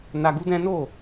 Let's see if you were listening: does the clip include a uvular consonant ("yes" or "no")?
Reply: no